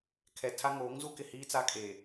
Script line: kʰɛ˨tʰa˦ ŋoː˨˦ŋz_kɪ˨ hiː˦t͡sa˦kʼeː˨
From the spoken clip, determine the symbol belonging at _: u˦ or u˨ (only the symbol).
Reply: u˦